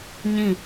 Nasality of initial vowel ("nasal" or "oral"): nasal